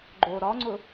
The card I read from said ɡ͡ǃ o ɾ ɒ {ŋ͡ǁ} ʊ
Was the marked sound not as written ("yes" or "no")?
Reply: yes